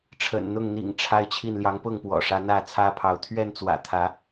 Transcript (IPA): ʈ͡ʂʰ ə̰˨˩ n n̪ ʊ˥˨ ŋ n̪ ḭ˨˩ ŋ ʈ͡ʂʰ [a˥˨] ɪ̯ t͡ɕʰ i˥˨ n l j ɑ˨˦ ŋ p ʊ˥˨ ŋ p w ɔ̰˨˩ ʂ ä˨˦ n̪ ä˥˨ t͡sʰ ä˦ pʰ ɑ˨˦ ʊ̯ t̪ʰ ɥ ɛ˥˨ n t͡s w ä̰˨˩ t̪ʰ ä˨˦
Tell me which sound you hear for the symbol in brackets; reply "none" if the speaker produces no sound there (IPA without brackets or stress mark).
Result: a˦